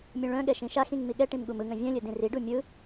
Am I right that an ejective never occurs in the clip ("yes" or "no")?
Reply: yes